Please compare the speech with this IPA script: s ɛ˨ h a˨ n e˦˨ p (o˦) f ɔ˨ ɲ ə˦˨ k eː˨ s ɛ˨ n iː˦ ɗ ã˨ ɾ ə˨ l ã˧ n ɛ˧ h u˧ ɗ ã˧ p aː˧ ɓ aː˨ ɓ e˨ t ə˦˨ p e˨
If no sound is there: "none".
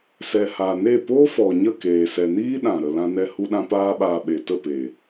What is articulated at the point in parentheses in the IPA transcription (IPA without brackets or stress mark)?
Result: oː˦